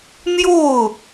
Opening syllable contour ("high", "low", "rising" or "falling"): falling